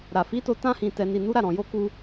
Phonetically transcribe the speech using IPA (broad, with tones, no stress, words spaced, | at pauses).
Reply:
ɾa˨ fi˨˦to˧ tã˧hĩ˨ tɛ˨ni˨nu˨˦ɾa˦˨ ɾɔ̃˨jo˧ku˧